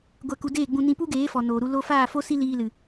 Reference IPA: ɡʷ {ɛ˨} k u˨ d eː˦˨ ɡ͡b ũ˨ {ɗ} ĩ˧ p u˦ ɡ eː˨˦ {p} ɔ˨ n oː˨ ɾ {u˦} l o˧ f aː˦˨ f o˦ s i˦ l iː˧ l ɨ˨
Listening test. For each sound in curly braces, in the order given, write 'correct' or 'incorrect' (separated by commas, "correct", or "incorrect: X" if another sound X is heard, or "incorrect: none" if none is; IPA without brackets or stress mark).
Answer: correct, incorrect: n, incorrect: f, incorrect: u˧